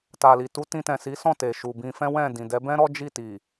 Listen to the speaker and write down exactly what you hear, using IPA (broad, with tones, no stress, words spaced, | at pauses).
ta˨li˨tu˨˦ tĩ˧tɛ̃˨si˨˦sɔ̃˦˨ te˨ʃu˨ bĩ˧fɛ̃˦wɛ̃˦˨ dĩ˨dɛ˨˦bɛ̃˦ ɾɔ˦d͡ʒi˦˨ti˨